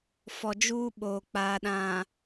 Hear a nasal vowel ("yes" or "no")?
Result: yes